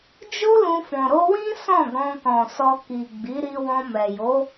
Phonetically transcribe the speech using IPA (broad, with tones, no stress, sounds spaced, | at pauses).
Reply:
d͡ʒ o˦ l ũ˧ f ɔ̃˨ ɾ o˧ w ĩ˦ s ɔ̃˦˨ ɡ ɔ̃˧ k ɔ̃˨ s ɔ˧ k i˨ ɡ͡b i˨˦ ɾ i˧ w ɔ̃˧ m ɛ˨ j o˨˦